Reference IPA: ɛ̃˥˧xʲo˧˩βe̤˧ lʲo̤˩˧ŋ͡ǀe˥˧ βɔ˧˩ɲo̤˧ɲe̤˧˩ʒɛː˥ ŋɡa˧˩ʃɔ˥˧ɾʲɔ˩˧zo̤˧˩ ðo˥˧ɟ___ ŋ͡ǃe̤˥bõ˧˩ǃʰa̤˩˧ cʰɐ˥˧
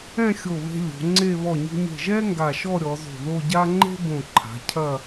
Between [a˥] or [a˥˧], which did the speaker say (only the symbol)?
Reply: a˥